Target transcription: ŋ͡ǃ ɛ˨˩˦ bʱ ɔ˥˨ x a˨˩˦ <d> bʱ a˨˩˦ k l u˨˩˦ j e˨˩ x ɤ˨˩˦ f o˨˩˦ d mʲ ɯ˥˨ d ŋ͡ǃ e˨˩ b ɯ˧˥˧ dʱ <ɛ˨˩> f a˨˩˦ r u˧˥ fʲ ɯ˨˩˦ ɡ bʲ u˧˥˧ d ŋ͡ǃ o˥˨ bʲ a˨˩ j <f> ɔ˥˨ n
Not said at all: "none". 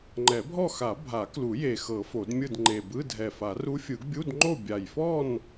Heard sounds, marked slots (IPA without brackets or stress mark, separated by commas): none, ɛ˨˩, f